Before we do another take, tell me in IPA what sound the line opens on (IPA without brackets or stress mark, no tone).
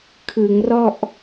kʰ